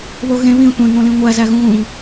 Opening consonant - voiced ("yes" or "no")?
yes